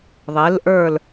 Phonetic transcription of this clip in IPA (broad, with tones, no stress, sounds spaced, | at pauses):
ðˤ e˩˧ l ʔ ə˞˧˩ l